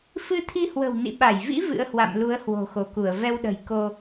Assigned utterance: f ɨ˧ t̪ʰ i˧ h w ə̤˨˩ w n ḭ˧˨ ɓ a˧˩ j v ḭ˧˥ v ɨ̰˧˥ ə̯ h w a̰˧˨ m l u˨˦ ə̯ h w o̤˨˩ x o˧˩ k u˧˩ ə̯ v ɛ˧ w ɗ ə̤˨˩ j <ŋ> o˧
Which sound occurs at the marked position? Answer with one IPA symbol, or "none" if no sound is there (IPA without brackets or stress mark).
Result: k